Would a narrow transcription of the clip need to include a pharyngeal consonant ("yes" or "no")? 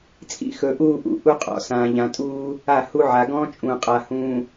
yes